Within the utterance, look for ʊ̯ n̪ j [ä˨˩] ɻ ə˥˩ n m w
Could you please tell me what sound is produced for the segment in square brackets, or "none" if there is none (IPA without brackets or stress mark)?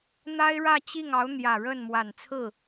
ä˨˩